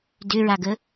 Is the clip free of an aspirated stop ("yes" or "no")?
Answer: yes